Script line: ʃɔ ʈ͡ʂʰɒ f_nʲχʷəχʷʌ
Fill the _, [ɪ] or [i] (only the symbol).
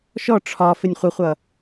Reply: ɪ